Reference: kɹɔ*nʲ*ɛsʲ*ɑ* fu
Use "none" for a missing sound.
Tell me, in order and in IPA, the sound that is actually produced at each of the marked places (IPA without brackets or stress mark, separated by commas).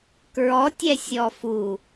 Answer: tʲ, ɔ